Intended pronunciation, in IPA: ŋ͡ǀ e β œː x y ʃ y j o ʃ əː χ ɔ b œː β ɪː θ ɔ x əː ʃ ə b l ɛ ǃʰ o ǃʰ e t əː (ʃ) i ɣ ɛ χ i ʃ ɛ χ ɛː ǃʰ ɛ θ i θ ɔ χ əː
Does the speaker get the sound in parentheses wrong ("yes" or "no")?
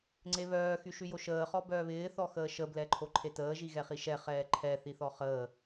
yes